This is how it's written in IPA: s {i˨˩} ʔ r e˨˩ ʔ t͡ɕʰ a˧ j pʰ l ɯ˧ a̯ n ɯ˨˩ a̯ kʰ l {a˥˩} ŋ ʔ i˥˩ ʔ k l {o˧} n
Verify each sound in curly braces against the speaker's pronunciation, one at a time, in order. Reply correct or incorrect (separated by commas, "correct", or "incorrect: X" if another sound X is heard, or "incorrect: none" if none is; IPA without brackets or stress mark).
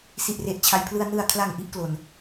correct, incorrect: a˨˩, correct